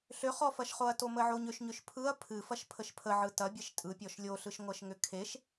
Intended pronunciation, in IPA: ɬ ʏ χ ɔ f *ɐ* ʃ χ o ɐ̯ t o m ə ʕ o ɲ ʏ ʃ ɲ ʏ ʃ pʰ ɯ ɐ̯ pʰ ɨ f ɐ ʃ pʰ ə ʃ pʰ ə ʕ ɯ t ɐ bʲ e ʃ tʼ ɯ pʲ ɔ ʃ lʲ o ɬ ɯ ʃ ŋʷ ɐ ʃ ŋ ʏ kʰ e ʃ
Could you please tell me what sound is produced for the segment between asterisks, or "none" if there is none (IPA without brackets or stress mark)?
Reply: ɐ